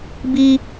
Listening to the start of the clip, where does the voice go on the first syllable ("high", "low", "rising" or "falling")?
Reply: high